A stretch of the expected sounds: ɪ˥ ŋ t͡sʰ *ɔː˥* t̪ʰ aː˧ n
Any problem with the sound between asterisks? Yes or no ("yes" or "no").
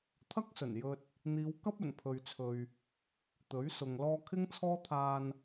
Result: no